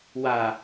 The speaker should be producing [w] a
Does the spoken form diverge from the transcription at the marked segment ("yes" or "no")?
no